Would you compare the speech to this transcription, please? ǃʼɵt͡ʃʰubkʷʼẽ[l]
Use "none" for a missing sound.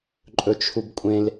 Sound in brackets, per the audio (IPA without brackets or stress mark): l